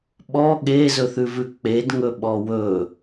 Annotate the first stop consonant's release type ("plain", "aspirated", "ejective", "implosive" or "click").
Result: implosive